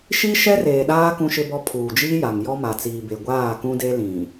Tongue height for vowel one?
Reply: high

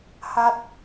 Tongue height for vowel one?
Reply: low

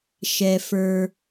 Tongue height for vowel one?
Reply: mid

